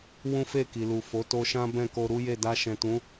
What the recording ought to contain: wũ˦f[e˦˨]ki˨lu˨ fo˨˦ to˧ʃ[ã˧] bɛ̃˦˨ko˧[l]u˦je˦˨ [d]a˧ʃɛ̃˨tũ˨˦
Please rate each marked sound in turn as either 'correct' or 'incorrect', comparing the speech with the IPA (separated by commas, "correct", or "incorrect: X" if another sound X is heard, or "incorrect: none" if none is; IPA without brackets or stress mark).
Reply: correct, incorrect: ã˦, incorrect: ɾ, correct